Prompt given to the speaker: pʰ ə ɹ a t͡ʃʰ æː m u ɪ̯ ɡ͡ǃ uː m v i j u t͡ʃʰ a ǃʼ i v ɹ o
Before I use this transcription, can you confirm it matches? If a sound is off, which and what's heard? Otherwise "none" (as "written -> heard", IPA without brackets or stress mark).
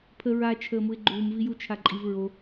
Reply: æː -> əː